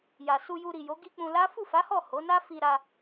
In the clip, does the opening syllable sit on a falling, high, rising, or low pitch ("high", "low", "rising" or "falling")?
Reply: low